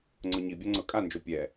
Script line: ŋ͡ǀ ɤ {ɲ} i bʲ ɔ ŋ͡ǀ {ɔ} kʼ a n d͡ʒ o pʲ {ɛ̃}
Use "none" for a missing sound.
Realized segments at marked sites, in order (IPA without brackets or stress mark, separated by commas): ɲ, ɤ, ɛ